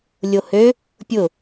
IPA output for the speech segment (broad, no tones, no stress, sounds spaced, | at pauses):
lʲ o h ø | pʲ ʊ